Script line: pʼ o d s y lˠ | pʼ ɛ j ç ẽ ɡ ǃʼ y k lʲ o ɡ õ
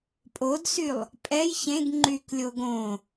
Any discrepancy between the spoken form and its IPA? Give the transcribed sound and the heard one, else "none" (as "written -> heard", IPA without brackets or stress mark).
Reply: ǃʼ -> ŋ͡ǃ